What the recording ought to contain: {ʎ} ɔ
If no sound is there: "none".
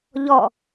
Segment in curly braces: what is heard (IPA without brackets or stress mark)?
ʎ